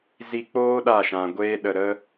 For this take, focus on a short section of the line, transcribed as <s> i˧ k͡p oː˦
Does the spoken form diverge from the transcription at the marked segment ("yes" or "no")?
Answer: yes